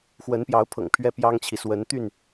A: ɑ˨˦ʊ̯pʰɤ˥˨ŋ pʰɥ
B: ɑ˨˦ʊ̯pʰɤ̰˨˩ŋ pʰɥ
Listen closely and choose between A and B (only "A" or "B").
B